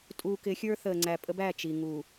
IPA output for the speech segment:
tʼ uː˨ k ɪ˨˦ xʲ ə˞˦ θ əː˨ ŋ͡ǀ æ˨ pʼ ə˦ b æ˦˨ t͡ʃ i˨ ŋ uː˨

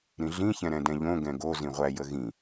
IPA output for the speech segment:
ɾ ĩ ɮ ĩ ç ɛ̃ ɾ ɛ̃ d ɛ̃ ʎ õ ɡ ɛ̃ ɡ o z ĩ ʁʷ æ j ə ɣ ĩ

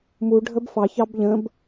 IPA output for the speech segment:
m u ɖʱ ə b f ɑ ç ɑ b ʎ ə̃ b

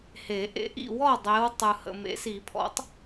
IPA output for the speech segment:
h e˨˩˦ ʔ ḛ˨˦ ʔ ḭ˨ w ɔ˥˨ dˤ e˨˦ w tˤ ɯ˨ h ə̰˨ m ḛ˨˦ s i˨˩˦ pʰ ɔ̰˨˦ tˤ

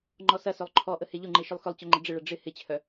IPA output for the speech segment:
ŋ͡ǃ ɔ s ɐ s ø lˠ ǃʰ ɔ ʔ ə h e ʎ ʊ ŋ͡ǃ e ʃ ʏ lˠ x ʏ lˠ t͡ɕ œ ŋ͡ǃ ə ɖ͡ʐ ɪ ɭ ɐ ɖ͡ʐ ɪ h ɪ t͡ɕʰ œ

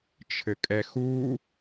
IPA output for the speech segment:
t͡ʃʰ ɘ kʼ ɛ x u

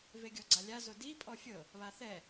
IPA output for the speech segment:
v e ɡʲ ɔ ɡ͡ǀ a lʲ a z o d i pʼ ɔ fʲ ɤ | β a θ ɛ

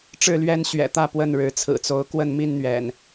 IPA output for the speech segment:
ʈ͡ʂ ɻ̩˥˨ l ɥ ɛ˦ n ɕ ɥ ɛ̰˨˩ t̪ ä˥˨ p w ə˥˨ n ɻ ɻ̩˨˦ t͡sʰ ɹ̩˨˩ t͡s o˨˦ ʊ̯ k w ə˥˨ n m i˥˨ n n̪ ɥ ɛ̰˨˩ n

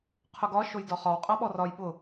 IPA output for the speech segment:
qʰ ʊ ɡ ɒ ʃ o j d ɒ χ ɒ w qʼ a ɓ ɔ r ɒ j ɓ ʊ

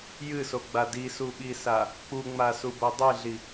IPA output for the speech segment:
j ɨ s o ɡ͡b a d i s u ɓ i s a | k͡p u ŋ͡m a s u b o dˤ i ɮ i

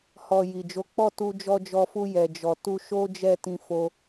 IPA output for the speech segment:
h ɔ˨ j i˨ d͡ʒ o˨˦ k͡p ɔ˦˨ t u˧ d͡ʒ ɔ˧ d͡ʒ ɔ˧ f u˧ j ɛ˨ d͡ʒ ɔ˨ t u˧ ʃ o˦ d͡ʒ ɛ˦˨ t ĩ˧ f o˧

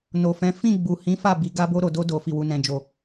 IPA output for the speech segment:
n o˨ f ɛ̃˨˦ f ĩ˦˨ ɡ͡b u˨ h ĩ˨˦ f a˦˨ b i˨˦ ɡ a˧ b o˧ ɾ o˨ d o˧ d o˨ f i˨ w u˨ n ɛ̃˨ d͡ʒ o˨

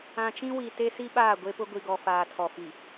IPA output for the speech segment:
ã˨ t͡ʃ ĩ˦ w i˨ t e˦ s i˦ ɓ aː˦˨ ɡʷ e˦ p ʊ˦ ɡʷ i˨ ɡ ɔ˨ f aː˨ tʰ ɔ˨ f i˨

